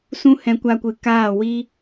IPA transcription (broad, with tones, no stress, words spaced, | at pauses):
sũ˦hɛ̃˧kʷa˧kʷɨ˨ kaː˦˨ wiː˧